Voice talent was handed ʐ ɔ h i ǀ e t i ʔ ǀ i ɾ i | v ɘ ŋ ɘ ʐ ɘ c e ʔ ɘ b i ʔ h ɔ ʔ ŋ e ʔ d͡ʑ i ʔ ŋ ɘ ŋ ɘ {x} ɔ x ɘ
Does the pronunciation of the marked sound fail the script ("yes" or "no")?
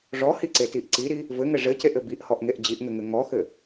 yes